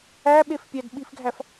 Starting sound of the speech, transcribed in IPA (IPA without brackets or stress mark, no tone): æ